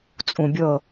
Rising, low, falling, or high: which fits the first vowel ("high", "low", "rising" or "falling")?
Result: low